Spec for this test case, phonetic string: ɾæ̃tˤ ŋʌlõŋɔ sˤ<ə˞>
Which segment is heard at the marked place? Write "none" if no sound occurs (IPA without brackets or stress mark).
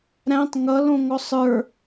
ə˞